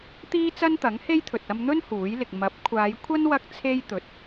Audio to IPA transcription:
t̪iː˥t͡sɐ˥nt̪ɐ˨˥ŋhe˥j t̪ʰɵ˨t̚ɐ˧mn̪ɵ˥n huː˨˥jlɪ˨k̚ mɐ˨˥p̚kʷʰaː˨˧jkʷʰɐ˥n wɐ˥k̚t͡sʰe˥j t̪ɵ˨˥t̚

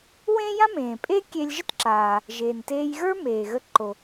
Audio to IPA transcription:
wẽ˥jã˥mẽː˩pʼe˥ kʲe˧lʲʒə˥tǁaː˩ | ʒeː˩nteː˧j ɣə˞˥meː˩ɣə˧ǃo˩

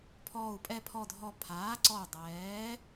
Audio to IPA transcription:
pʰɔː˨˩u̯pʼɛ˨˩pʰɔ˨˩dʱɔ˨˩ pʰaː˩˧ǀɔ˨˩u̯ dˤɛː˩˧

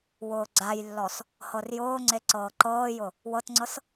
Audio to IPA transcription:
wʊːɡ͡ǀajlːɔs | hɤrjʊːŋ͡ǀe ǀɤːǃɤːjʊ | wɤtŋ͡ǀɤs

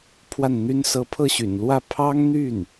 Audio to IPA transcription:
pʰwa˥˩nn̪y˥n sɤ˧˥pʰɤ˥˩ɕy̰˨˩nlwä˥˩ pʰɑ˥ŋn̪y˥˩n

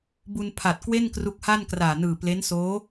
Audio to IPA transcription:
bu˧npʰa˨˩t̚kwe˥˩n kru˦˥k̚ha˥˩nkraː˨˩nɯː˨˩ ple˦˥nsoː˦˥

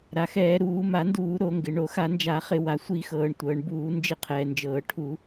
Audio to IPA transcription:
ɾa˩xɛː˧˩˧ ɾuː˧˩˧ma˧˩˧nduː˧˩˧ ɾo˧˩˧ŋɡɪ˩ ɳo˧˩˧xa˧˩˧nd͡ʒa˧˩˧χɪ˧˩˧ wa˩sʷi˧˩˧xɤː˩ɳ tʷɤː˩ɳbuː˧˩˧ nd͡ʒɪ˧˩˧qʰɛː˩nd͡ʒɤː˩ ʈʰu˧˩˧

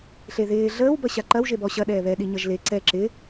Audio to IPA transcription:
ɬeðɪː ɮəːw bʌɕaǃɐw ʒebɔ ɕɐ ɗɛːβɛ ɗiɲʌʒle ǀɛ ǁɪ

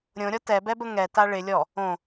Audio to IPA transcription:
ɾʲõɾʲɔ tɛbɛbə ŋɛta ɭɪ lʲɔ | õ

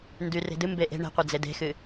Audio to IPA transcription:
ndyre̤dɨ mbeʔe̤ ɳe̤qʷe d͡zede̤xɨ

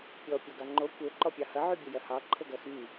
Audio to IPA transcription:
pʲɔ pʲoɡɑŋ͡ǃo kʷe ǃɔpʲɑhɐ ʕybʲəjɐhɑ ǃʰəɡɐxy

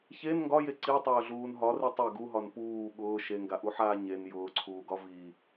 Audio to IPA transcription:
çen ŋɡɒje ǀitˤʊːɮuːn ɦɒri tˤe ɡuɦɒn puː ɠʊː ʃeŋɡaʔuħaː ɲen jʊːǀʰuːɡɒ vi

